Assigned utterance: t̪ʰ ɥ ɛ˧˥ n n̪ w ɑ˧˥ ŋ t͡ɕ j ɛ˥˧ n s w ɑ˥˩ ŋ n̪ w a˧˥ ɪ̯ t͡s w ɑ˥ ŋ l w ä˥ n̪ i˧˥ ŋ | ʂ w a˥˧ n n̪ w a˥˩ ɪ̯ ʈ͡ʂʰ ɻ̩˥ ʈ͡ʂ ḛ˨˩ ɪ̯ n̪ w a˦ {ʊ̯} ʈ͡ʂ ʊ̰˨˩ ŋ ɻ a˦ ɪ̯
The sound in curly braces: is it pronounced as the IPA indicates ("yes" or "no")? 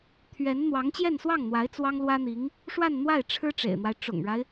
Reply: no